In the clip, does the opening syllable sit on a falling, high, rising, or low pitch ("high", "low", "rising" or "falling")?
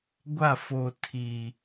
falling